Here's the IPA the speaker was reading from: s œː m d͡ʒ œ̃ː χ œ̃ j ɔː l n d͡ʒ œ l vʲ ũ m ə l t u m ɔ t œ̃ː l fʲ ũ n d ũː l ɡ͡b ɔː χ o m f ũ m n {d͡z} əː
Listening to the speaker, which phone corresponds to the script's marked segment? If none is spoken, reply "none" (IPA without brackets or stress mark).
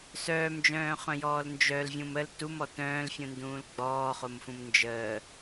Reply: d͡ʒ